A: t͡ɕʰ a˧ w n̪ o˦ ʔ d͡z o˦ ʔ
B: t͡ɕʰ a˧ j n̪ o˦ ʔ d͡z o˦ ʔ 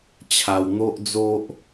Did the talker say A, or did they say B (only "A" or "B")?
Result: A